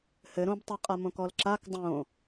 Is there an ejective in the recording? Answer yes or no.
yes